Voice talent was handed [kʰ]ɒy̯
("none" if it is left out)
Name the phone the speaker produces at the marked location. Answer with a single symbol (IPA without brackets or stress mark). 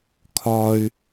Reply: kʰ